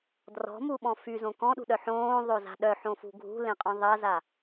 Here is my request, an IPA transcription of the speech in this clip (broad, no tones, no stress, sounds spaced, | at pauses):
d r ɔ̤ m u ɓ ɔ̃ f y z õ k ɔ̃ ɗ ṳ ɗ œ ħ õː ðˤ o z a̤ ɗ œ ħ õ f ṳ ɡʱ ṳ l ẽ qʼ ɔ̃ ðˤ ɐ z a